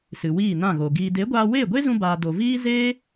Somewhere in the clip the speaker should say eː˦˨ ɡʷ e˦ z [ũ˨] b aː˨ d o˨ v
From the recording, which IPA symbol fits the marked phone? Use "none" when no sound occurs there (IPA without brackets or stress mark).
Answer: ũ˧